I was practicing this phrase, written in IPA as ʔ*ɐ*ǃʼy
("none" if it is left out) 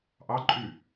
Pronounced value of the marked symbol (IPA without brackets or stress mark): ɑ